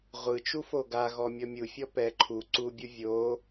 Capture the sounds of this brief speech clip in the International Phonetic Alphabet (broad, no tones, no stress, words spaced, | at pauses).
ʁʷɯt͡ʃu foɡaɣɔ mʲɔmʲufʲɔ pɛ ǃʰu ǀubʲu vʲo